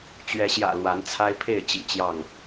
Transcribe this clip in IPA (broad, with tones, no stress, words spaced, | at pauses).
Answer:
t͡ɕɥɛ˨˦ɕjä̰˨˩ lwa˨˦nt͡sʰa˦ɪ̯pʰe˥˨ɪ̯ t͡ɕḭ˨˩t͡ɕjɑ˥˨ŋ